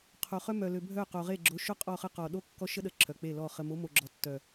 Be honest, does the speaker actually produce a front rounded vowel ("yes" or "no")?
yes